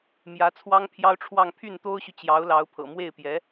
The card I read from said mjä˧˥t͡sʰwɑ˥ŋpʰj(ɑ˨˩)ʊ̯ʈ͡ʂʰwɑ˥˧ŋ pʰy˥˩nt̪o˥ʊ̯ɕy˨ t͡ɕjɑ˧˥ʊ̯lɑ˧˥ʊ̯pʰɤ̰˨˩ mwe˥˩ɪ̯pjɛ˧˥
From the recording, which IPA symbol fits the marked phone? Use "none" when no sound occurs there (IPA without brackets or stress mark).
ɑ˥